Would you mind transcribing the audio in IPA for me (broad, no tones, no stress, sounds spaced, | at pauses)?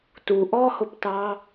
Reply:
t u ʔ ɔ h ʊ p t ɑ